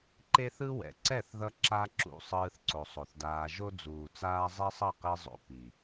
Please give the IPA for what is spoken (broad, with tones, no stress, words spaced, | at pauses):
ǃe˦θɯ˦ wɛ̰˨ ǀɛ˦˨θðʌ˧ ǁa˧ ǁṵ˨ sˤɯː˧θǀo˨sˤo˨θdaː˧ ʒo˦ d͡zuː˨t͡saː˦ zˤɛ˦sˤʌ˦˨qe˧zˤo̰˨ pi˨